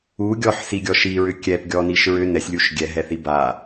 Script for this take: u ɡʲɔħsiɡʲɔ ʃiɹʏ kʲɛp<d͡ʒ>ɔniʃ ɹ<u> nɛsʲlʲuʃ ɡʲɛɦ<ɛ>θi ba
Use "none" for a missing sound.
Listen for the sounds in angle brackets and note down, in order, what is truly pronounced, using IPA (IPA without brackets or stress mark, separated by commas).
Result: ɡʲ, ʏ, ɛ